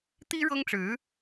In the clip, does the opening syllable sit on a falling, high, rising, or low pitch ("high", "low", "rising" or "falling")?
high